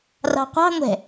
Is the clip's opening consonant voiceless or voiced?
voiced